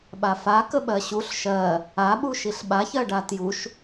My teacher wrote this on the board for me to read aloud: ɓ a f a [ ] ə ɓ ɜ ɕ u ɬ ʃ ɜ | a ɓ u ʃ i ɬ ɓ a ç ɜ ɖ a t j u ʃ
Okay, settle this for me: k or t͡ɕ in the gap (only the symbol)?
k